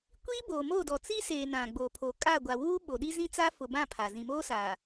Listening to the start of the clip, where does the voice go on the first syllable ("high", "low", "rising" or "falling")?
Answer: high